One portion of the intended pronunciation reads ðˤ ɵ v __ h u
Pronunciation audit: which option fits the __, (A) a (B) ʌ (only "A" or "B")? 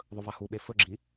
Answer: A